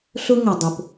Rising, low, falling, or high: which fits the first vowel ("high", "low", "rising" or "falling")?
high